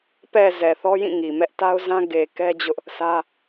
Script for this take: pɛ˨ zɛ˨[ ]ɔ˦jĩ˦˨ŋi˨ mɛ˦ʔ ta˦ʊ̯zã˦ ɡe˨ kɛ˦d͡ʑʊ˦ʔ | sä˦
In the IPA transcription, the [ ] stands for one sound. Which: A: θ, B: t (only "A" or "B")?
A